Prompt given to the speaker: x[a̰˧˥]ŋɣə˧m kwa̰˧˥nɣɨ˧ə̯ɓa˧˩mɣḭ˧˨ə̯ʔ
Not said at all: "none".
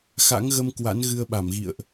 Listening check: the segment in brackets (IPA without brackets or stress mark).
a̰˧˥